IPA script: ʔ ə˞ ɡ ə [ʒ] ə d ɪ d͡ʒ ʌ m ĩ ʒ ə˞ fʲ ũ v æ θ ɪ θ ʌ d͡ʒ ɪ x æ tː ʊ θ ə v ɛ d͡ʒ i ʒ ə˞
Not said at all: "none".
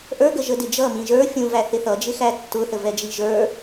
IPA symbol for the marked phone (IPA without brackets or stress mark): ʒ